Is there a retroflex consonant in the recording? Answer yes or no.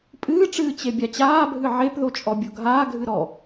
yes